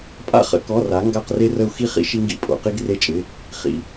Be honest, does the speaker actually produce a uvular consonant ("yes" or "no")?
yes